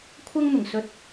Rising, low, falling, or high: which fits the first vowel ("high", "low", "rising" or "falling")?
high